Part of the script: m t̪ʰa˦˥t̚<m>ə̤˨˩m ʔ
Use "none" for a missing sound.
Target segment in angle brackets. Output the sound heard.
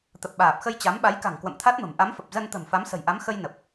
m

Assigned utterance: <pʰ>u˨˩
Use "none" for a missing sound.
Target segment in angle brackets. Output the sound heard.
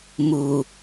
m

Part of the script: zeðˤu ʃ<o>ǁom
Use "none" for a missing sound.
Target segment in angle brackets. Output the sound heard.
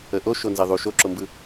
o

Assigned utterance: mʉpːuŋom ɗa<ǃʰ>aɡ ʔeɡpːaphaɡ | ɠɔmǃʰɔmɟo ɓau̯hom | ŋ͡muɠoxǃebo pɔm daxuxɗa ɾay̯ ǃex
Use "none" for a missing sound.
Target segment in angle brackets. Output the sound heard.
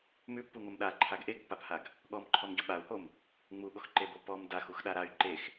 ǃʰ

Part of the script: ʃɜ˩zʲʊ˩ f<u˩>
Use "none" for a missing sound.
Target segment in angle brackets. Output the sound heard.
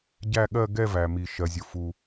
u˩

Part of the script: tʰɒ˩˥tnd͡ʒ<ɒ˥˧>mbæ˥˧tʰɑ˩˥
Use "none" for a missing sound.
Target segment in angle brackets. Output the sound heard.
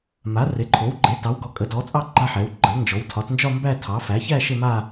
ɒ˥˧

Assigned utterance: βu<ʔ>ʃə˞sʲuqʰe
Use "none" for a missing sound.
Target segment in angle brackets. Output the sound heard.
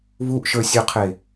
ʔ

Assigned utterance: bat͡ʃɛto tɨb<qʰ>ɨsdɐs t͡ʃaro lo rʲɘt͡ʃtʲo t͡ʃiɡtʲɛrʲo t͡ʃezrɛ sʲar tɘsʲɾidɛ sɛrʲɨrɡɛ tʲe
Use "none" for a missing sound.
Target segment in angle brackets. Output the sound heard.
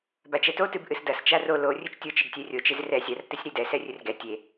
ʔ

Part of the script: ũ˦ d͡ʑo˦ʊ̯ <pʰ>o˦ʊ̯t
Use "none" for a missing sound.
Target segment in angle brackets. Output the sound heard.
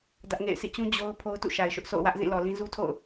pʰ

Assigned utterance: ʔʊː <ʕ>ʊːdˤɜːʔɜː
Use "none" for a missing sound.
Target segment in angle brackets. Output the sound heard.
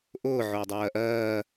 ʕ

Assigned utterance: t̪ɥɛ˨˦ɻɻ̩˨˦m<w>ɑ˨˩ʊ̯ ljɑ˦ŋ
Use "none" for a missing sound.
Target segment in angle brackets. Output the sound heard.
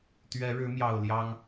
j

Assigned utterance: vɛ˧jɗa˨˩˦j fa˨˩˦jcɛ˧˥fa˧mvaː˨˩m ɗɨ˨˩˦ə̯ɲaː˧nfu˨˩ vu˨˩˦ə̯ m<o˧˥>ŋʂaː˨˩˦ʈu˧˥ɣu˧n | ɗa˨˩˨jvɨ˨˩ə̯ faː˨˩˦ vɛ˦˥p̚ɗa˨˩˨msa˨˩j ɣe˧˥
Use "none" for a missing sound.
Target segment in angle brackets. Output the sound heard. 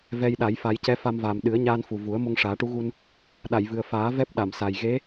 o˧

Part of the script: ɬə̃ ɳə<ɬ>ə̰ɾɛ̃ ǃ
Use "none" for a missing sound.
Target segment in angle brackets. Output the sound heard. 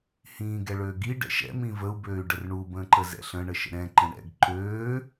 ʃ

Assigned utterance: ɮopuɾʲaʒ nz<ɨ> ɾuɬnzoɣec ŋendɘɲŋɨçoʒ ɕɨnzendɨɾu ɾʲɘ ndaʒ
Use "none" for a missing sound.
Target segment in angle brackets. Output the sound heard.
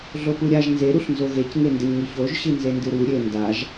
e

